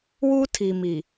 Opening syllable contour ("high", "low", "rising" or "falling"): high